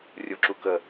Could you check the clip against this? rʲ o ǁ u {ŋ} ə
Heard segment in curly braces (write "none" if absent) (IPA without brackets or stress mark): k